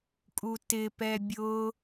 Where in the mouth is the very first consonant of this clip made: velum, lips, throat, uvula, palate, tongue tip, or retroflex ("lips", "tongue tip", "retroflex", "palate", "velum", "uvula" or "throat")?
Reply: velum